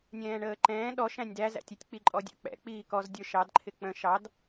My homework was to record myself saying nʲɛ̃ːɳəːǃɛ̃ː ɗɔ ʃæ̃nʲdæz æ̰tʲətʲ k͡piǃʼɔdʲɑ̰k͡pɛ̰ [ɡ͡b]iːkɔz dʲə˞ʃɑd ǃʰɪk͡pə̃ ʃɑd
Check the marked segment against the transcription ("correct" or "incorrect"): incorrect